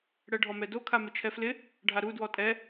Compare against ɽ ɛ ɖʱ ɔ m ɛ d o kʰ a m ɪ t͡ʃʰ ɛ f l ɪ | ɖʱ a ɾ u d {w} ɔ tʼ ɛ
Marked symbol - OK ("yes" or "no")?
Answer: yes